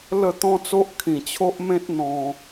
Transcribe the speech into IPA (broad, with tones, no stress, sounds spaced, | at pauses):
l ə˥˧ t̪ ɔ̃˦ t͡s o˦ ʔ kʰ ĩ˨˩ t͡ɕʰ o˦ ʔ m ẽ˦ t̚ n̪ ɔ̃˧